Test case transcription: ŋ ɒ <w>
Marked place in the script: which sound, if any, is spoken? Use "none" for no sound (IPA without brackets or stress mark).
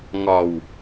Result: w